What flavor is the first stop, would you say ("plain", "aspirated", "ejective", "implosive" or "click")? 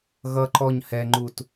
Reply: click